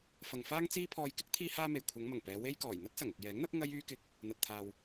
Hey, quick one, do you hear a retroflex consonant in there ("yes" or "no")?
no